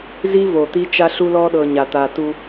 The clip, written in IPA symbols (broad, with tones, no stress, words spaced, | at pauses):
zi˦vo˨ t̪i˦ t͡ʃa˦ɬu˦lɔ˦ɗɤ˨ ɲa˨t̪a˨tu˦